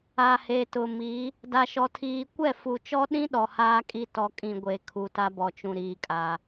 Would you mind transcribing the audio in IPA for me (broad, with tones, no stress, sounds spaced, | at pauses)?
a˨ h e˨ t ʊ˨ m i˨˦ | d a˨ ʃ ɔ˨ tʰ iː˨ kʷ ɛ˦˨ f u˨ t͡ʃ ɔ˦ ɗ ĩ˦ ɗ ɔ˨ h aː˦ kʼ i˦ t ɔ˨ kʼ ĩ˨ ɡʷ e˨ kʰ u˨ t a˦ b ɔ˨ t͡ʃ ũ˨ ɾ iː˨ kʼ a˨